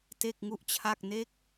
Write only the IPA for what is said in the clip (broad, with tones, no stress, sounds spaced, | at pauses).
t e˥˩ k̚ ŋ u˥˩ ʔ t͡ɕʰ a˥˩ k̚ n e˦˥ k̚